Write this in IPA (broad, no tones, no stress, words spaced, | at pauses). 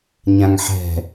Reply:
ɲãŋħɛ̤